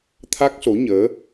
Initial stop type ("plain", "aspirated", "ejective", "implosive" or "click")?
aspirated